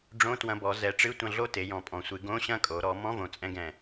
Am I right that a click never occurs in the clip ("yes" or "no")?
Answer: yes